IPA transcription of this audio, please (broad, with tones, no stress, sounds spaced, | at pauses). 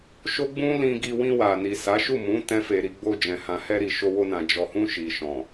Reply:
ʃ o˦ ɡ͡b ũ˦ l ĩ˧ ɡ i˧ w ĩ˧ w a˨ n i˨ s a˨˦ ʃ u˦˨ m ũ˨˦ t ɛ̃˦ f e˧ ɾ i˧ ɡ͡b o˧ d͡ʒ ɛ̃˨ h ã˨ h ɛ˧ ɾ i˨ ʃ o˧ w o˧ n ã˨ d͡ʒ ɔ˨ h ũ˧ ʃ i˨ ʃ ɔ̃˨